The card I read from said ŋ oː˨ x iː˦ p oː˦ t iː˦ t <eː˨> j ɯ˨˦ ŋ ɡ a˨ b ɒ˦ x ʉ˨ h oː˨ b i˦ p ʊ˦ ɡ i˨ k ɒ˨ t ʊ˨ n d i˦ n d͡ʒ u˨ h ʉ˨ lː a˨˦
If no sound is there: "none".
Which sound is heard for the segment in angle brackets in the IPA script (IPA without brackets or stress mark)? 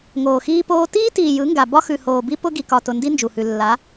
iː˨